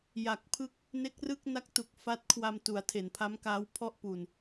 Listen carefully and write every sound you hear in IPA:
j a˨˩ k̚ pʰ ɯ˥˩ k̚ | n e˦˥ k̚ r ɯ˥˩ k̚ n a˦˥ k̚ t u˨˩ k̚ f a˦˥ t̚ kʰ w a˧ m t u˩˦ a̯ tʰ e˩˦ n pʰ a˦˥ m k aː˦˥ w pʰ ɔ˥˩ ʔ p u˨˩ n

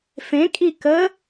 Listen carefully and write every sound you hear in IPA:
f ẽ kʼ i k ə

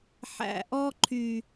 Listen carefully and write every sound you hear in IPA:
ħ æ̰˨ ʔ ɔ˦ ǃʰ y˨

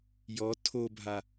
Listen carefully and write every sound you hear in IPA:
j ɔ tʰ o bʱ a

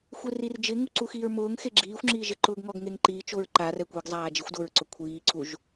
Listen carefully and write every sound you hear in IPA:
xʷ e r i r d͡ʒ ɪ ŋ u ǀ u x iː ɹ m ʊː ŋ x e ɡ͡ǁ iː xʷ ŋ͡ǁ iː ʒ ɪ ǃ ʊː ɡ ŋ ɔ ɡ ŋ e ŋ ǃ iː t͡ʃ o ɹ ǃ a r ɛ kʷ e ɡ zˤ aː d͡ʒ i xʷ d o ɹ ǀ ʊ kʷʰ iː ǀ u ʒ

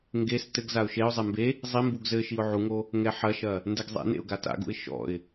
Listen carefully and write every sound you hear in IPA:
ŋ ɡ e s t ɘ ɡ z a ʊ̯ ʃ e ʊ̯ zˤ e m b e | zˤ i m b u ɡ z ɘ ʃ i ʊ̯ ʕ u ŋ o | ŋ ɛ ħ ɐ ʃ ɐ | n d ɛ ɡ zˤ ḛ n ḛ ʊ̯ ɡ a t a̰ ɡ ṵ ɪ̯ ʃ ɔ̰ ɪ̯

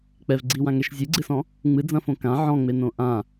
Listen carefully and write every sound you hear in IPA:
k͡p ɛ v ɡ͡ǀ i w ã ŋ ɛ ʃ zʲ ɨ ɡ͡ǀ ɨ s ɔ̃ | ŋ͡m ɨ d͡z ɐ̃ f õ k ã ʕ ɔ̃ ŋ͡m e n õ ʔ ã

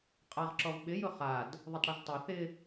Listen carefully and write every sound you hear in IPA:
qʼ a ʁ ǁ ɔ v ɓ ɪ j ʊ χ a d | ðˤ ʊ tˤ ɽ ɐ ʒ tˤ ɐ θ ɪ

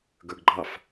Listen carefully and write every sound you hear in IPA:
ɡ ə˞ ɡ ɡ͡ǃ ɑ f

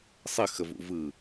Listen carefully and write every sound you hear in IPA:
sˤ ɘ x ə v ṵ v ɯ

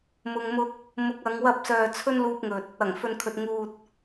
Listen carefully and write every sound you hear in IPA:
m ʊ˧ ŋ m ʊ˧ k̚ | m ʊ˨˥ k̚ ɐ˨˧ ŋ w ɐ˧ p̚ s œː˨ t͡sʰ ɵ˥ n l uː˧ p̚ ŋ ɵ˨ t̚ | ɐ˨˩ ŋ f ɵ˨ n kʰ ɵ˨ t̚ ŋ uː˨ t̚

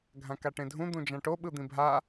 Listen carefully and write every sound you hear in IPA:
ɡʱ ã k a ʈ ẽ dʱ ũ d̪ ũ d͡ʒ ã ʈ o ɓ ɯ d̪ ĩ bʱ a

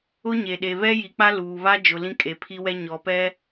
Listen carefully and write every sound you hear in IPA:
ʊ˦ ɲ e˨ ɗ e˨ β ɛ˦ j i˨ k͡p a˦ l uː˨ β a˦ d͡ʒ ʊ˨ l ĩ˦ kʼ e˨ pʰ i˦ w ɛ˦ ɲ ɔ˨ p ɛ˦

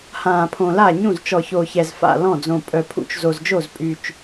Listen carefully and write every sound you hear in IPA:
h ãː˨˩ pʰ õ˨˩ l a˥˩ ɲ ũ˥˩ z t͡ʃ ɔ˨˩ ç o˨˩ ç ɛ˨˩ z f a̰˥˩ l ɔ̃˥˩ d͡z õ˨˩ pʼ œ˨˩ pʰ ṵ˨˩ t͡ʃ z o˨˩ z d͡ʒ o˥˩ z pʼ y˨˩ t͡ʃ

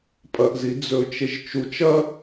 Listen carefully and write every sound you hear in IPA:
pʼ ɐ ʔ z i d͡z ɵ t͡ʃ e ʒ t͡ʃ u t͡ʃ ɐ

